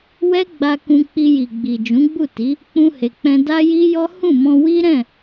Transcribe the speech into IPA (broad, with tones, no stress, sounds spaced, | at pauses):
w ɛ˦ ɡ͡b a˧ k ũ˧ k͡p i˧ j i˨ ɡ͡b i˨ d͡ʒ ũ˨˦ ɡ͡b u˦˨ t i˨˦ | k͡p ũ˧ h e˨ k͡p ɛ̃˧ d a˦ j i˦ j ɔ˦ h ũ˦˨ m ɔ̃˧ w i˦ ɾ ɛ̃˦˨